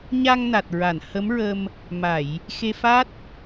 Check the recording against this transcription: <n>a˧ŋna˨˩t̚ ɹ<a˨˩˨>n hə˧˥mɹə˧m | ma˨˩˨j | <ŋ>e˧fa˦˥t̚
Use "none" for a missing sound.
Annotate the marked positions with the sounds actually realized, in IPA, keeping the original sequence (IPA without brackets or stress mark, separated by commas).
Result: ɲ, a˨˩˨, x